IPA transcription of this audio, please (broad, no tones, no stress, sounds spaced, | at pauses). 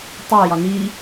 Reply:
tˤ ø j ɒ n i